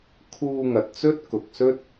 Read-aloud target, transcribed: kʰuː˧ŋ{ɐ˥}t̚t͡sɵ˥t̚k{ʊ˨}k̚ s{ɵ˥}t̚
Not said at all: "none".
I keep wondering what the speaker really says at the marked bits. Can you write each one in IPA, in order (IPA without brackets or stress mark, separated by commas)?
ɐ˨, ʊ˨, ɵ˥